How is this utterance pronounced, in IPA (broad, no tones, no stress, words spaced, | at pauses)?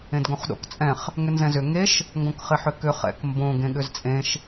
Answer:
ẽdɡõχɗo̰kt͡sʼɛ̃χ | ŋʏnzɛ̃zʏ ŋeʃ | ŋɡõkχɪħʏkʏ χɛ̰kmbõ ɡẽɠʏzt͡sʼẽʃ